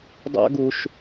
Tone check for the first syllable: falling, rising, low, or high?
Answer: high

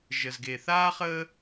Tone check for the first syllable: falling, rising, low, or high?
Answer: low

